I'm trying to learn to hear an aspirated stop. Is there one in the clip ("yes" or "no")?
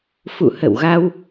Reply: no